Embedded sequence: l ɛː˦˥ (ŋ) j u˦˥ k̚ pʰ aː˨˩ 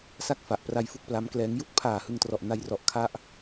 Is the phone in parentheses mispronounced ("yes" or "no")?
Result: no